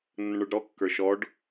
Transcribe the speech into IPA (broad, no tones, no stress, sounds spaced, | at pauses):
nː ə̃ ɳ ə˞ ɖ ɾ ɔ kː ə˞ ʃ ɔ ɖ